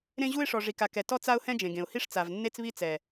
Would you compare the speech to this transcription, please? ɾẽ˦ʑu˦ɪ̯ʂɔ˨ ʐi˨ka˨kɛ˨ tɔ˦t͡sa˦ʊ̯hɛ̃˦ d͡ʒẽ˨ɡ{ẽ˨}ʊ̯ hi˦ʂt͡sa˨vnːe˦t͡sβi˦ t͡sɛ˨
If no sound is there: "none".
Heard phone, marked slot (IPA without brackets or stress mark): ẽ˨